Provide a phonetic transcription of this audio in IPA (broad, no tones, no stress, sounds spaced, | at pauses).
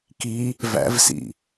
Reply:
k i | v æ̰ v s ḭ